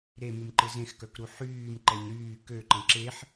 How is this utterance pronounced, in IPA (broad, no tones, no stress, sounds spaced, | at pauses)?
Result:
ɾ e m y m ǃ ɪ z ẽ x k œ k ɾ u ħ yː m ǃ ɛ ɲ ɾ yː k ø ǃ ə̃ ǁ e ħ